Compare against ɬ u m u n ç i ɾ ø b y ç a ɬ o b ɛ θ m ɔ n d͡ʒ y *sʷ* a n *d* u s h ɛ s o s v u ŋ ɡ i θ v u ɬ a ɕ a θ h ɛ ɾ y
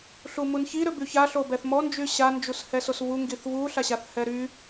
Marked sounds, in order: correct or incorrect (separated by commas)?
incorrect, incorrect